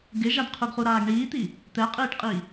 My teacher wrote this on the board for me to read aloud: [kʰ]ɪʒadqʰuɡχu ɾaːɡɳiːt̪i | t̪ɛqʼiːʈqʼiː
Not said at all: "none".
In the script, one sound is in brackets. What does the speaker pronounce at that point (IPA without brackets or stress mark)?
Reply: ɡ